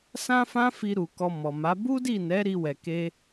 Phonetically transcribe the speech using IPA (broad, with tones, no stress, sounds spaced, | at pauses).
s ã˦ f ã˦ f i˧ ɾ u˨ k ɔ˧ m ɔ˨ m a˨˦ b u˦ d i˦˨ n ɛ˨˦ ɾ i˦ w ɛ˧ k e˦